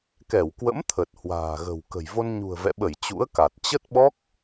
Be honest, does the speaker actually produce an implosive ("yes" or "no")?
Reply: yes